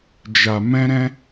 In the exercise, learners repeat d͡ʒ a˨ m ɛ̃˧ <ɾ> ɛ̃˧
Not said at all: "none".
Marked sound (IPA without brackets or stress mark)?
ɾ